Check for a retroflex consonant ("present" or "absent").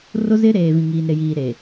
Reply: absent